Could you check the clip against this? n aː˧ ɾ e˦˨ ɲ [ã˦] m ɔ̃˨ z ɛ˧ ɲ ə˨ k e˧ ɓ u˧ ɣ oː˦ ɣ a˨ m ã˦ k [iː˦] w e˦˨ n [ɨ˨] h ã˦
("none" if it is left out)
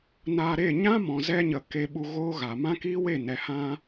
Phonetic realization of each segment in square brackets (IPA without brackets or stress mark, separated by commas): ã˦, iː˦, ɛ˨